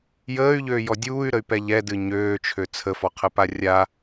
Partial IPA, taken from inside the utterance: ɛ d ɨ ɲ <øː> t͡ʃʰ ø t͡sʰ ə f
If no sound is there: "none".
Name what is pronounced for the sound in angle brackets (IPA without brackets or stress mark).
øː